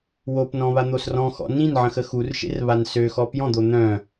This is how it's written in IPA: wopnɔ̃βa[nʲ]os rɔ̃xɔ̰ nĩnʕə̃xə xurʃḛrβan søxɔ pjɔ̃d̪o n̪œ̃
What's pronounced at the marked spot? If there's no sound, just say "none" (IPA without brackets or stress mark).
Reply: n̪